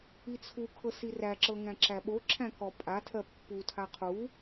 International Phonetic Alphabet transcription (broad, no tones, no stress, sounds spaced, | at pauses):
i t͡sʰ u kʰ ɤ s i r æ ǁ ɤ ŋ æ̃ ǁ æ ɓ o ǁʰ æ̃ k ɔ pʼ a tʰ ɜ pː u tʰ a qʰ u